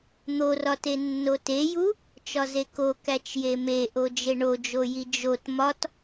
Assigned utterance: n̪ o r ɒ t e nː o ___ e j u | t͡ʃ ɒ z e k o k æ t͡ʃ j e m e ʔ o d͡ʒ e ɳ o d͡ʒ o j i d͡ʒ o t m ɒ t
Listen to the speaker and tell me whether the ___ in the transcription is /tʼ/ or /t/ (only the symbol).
t